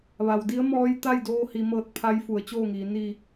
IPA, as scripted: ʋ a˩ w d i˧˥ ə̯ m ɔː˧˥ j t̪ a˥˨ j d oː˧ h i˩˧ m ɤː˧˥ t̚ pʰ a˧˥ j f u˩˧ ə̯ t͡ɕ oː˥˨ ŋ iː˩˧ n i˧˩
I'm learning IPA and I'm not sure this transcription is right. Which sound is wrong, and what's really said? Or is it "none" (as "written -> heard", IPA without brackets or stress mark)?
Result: none